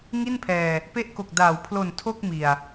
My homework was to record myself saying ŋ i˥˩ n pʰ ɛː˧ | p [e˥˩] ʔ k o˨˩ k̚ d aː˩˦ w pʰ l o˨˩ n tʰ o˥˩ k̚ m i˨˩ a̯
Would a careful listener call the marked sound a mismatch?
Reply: yes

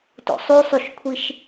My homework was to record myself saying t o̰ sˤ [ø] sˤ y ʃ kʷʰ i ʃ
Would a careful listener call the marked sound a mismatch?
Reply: yes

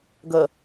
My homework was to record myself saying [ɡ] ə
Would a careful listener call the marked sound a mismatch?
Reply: no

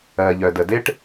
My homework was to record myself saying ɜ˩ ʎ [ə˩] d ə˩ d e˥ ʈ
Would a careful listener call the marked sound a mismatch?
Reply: yes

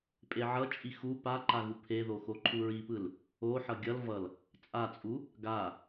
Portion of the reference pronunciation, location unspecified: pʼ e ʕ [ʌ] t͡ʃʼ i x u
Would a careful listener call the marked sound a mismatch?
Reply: no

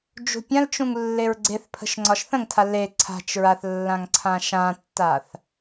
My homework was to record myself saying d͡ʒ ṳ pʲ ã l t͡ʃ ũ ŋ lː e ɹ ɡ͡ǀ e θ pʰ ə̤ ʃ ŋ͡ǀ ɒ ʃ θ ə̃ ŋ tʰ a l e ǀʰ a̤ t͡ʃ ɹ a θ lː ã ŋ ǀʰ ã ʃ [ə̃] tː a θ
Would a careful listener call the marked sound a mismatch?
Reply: yes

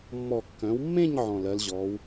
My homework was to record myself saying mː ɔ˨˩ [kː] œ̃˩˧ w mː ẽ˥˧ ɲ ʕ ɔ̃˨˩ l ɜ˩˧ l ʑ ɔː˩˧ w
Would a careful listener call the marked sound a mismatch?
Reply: no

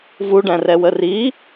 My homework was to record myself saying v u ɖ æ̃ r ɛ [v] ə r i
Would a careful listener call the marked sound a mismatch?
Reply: yes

